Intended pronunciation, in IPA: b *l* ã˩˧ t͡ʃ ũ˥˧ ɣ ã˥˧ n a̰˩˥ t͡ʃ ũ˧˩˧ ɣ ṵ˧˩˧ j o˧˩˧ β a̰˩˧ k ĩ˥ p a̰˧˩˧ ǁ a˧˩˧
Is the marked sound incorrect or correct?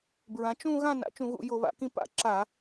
incorrect